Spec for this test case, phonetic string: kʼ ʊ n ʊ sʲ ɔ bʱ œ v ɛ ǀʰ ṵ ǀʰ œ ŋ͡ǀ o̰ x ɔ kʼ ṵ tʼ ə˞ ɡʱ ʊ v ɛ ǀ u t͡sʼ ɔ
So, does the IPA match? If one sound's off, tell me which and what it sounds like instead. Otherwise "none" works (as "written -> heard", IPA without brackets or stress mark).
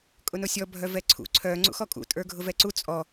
o̰ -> ṵ